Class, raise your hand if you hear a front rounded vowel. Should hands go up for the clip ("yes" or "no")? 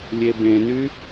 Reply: yes